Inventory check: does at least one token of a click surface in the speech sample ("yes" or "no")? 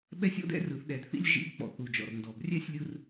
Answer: no